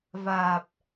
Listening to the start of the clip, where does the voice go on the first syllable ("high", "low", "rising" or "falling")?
low